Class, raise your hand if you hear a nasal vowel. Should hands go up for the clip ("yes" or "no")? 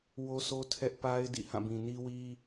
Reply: yes